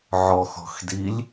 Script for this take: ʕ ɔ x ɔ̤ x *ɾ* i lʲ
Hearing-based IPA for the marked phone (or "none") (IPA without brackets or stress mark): d